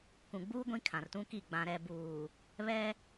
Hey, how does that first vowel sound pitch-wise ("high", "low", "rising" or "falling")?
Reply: low